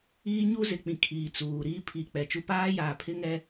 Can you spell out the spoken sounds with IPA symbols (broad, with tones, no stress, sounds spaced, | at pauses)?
iː˦ ɲ u˦ z ɪ˨ k͡p ĩ˨ kʰ iː˨ t͡s uː˨ ɾ iː˦ pʰ i˨ k͡p ɛ˨ t͡ʃ u˦ p aː˦ j aː˨ pʰ ɪ˦ ŋ ɛ˦